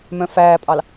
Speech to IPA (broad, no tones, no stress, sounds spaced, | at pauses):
m œ̃ f æː pʼ ɑ l